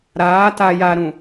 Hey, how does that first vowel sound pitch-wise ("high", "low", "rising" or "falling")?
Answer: rising